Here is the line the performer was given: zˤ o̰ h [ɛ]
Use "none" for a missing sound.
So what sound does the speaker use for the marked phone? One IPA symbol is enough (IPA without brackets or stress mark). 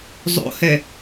ɛ